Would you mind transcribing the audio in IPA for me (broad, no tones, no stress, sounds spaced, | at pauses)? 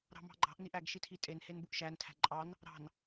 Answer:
ɾ ɑ̤ m ɑ̤ ɡ͡ǃ ɑ̤ ʔ n i ʔ æ ɡ ʃ i tʰ i tʼ e n h e n b u ʔ ʃ æ n tʰ æ̤ ǃʼ ɑ n | ɾ ɑ̤ n